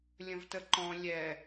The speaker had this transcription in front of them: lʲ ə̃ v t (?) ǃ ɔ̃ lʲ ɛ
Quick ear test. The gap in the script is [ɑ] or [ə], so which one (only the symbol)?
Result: ə